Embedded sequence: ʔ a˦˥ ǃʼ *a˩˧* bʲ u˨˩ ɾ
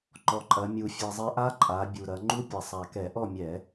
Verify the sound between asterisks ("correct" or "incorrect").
correct